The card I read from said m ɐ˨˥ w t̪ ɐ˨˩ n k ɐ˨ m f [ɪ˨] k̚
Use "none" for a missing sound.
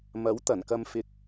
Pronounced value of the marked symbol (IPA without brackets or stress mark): ɪ˨